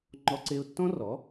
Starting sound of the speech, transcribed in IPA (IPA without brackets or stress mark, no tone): ŋ͡ǃ